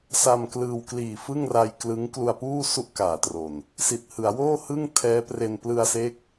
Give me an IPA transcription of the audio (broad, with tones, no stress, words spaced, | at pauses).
sa˧mklɯː˧w kliː˨˩ fɯ˥˩ŋra˧jklɯ˦˥ŋ klu˧a̯puː˥˩ su˥˩ʔkaː˩˦tro˨˩n | si˨˩t̚hɯ˩˦a̯ woː˥˩hɯ˥˩ŋ tʰɛː˦˥pre˧n plɯ˧a̯se˦˥k̚